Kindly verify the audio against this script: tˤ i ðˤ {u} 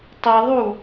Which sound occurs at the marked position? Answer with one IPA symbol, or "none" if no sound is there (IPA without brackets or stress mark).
u